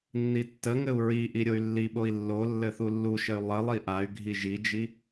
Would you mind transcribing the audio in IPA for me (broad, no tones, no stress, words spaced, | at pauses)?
nːitːəŋɘu̯ ɹiʔi ɾʲoy̯lːiɓoi̯ lːolːɘ θulːuʃəy̯ lˠə lˠiʔay̯ɡʱi ʒid͡ʒi